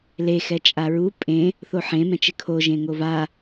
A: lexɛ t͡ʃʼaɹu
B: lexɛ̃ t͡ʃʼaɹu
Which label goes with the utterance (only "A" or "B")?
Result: A